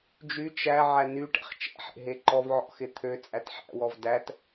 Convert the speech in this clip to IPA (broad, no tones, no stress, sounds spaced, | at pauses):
d͡ʒ y t͡ʃ æ ʕ æ n y ʈ ɛ̰ χ t͡ʃ ɛ̰ ħ ḛ ɦ e ǃ ɔ v ʕ ɔ̰ x ɪ t̪ʰ ø t͡sʼ æ t ħ æ̰ w ɔ v d æ t